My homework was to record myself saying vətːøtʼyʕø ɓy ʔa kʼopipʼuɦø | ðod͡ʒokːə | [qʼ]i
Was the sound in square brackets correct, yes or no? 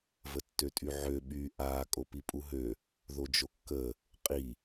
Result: yes